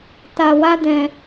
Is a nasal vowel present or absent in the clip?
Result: present